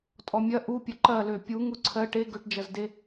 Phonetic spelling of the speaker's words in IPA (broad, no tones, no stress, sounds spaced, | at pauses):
tʼ ɔ mʲ ɐ ʔ u pʲ ɐ ǃ ɐ l ø pʲ u ŋ u ǀʰ ɜ ʈ e ɡ ø ʈ d͡ʒ ɐ z d e